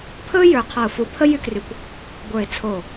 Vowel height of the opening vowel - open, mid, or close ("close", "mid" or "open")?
mid